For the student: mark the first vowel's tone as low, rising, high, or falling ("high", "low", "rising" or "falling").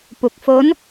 low